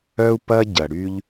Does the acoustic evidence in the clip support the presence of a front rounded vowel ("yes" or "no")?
yes